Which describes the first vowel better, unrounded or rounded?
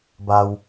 unrounded